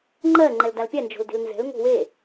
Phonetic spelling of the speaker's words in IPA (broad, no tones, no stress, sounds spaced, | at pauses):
ŋ͡ǃ ɜ ŋ͡ǃ ɛ l d a l pʲ ɛ n d͡ʒ o̤ l d e̤ l n z ɛ̤ l ŋ o̤ w e